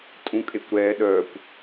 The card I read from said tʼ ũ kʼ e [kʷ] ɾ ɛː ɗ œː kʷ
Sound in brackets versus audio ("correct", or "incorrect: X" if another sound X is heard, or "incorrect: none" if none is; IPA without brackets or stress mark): correct